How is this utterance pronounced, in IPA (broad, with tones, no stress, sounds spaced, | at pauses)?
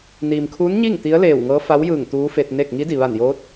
n iː˩ m kʰ uː˧˥ n ɲ i˥˨ ŋ t̪ i˧˥ ə̯ l eː˧˩ w ŋ ɤː˧˥ f a˧˥ w j ɯː˧˩ ŋ t̪ uː˧˥ f e˧ t̚ n e˥˨ k̚ ŋ i˧˥ d i˩ ʋ a˧˩ n j oː˧˥ t̚